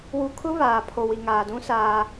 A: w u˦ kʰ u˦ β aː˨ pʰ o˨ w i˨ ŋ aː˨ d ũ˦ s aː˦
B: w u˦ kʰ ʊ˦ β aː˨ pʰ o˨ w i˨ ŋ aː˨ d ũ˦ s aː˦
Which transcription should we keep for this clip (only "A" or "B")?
B